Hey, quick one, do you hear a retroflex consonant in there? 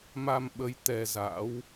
no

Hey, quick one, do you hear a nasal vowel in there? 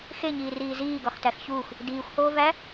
no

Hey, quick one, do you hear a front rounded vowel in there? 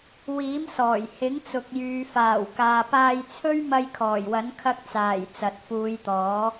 yes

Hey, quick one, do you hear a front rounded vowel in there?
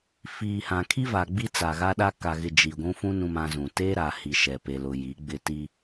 no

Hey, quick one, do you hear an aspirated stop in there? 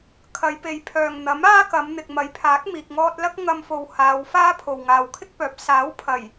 yes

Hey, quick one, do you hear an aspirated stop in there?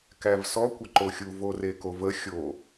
no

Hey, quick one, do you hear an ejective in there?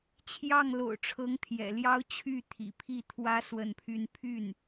no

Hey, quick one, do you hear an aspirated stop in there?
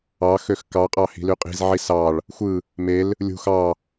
no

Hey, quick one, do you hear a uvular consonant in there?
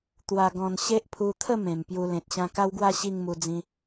no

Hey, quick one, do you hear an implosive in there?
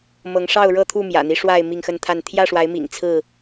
no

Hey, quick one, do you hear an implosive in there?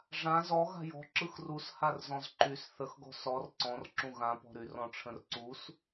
no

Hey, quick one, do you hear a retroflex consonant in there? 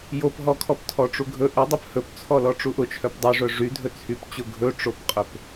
yes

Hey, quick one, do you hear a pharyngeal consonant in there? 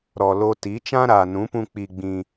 no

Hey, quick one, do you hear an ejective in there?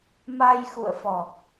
no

